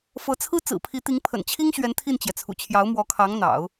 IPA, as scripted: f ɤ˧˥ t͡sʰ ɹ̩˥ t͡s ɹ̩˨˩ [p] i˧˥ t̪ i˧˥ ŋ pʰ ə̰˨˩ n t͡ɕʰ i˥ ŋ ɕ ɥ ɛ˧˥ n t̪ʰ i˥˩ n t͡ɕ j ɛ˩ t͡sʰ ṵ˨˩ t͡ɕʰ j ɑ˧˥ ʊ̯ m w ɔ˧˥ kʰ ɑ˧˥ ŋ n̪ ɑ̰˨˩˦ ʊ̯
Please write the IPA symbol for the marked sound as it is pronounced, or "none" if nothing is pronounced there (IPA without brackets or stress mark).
pʰ